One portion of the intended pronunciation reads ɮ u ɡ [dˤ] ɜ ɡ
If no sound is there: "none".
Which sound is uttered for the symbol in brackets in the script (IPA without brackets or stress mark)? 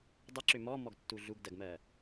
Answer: d